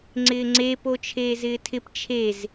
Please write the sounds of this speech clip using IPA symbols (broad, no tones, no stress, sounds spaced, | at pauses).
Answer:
ŋ͡ǀ ɪː ŋ͡ǀ e p o t͡ʃʰ eː z ɪː tʰ ɪ p t͡ʃʰ e z